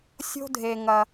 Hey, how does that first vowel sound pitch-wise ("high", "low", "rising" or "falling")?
high